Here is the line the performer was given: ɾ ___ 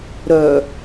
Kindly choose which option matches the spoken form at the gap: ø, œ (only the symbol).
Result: œ